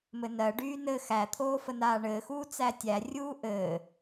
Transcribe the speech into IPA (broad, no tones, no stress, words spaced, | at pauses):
mɘnɜɖyː nɘ xæt̪ʰoː fənaːɳɘːxuː t͡sætʲærʲuː ʔɘː